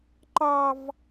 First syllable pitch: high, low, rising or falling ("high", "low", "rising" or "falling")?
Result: high